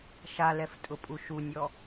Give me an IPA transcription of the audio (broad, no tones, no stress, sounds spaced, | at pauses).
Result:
ʃ a l ɛ f tʼ ʊ pʼ u ʃ u nʲ ɔ